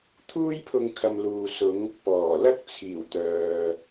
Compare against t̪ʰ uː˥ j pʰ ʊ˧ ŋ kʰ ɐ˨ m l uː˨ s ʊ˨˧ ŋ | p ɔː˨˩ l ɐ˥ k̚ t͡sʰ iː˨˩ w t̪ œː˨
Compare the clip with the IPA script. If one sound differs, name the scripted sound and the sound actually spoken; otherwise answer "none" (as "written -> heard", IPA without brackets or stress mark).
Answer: none